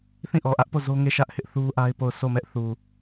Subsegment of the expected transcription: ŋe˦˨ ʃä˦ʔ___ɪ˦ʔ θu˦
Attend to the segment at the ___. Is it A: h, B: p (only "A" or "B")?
A